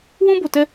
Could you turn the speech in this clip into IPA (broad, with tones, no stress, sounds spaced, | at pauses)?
w ũ˦ b o˨ t ɛ˦